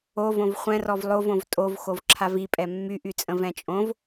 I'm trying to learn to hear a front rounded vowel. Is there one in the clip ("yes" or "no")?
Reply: yes